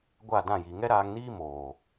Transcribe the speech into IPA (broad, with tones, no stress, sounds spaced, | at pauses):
ɡʷ a˦˨ d ã˦˨ j i˨ ŋ ɛ˦ ɾ aː˧ ŋ n iː˦ m oː˨